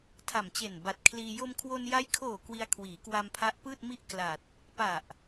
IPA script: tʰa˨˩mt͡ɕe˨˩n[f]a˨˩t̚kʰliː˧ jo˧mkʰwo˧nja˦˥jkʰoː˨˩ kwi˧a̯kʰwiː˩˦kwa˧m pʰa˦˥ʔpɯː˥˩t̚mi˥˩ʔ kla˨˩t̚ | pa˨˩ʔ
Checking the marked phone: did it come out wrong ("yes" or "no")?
yes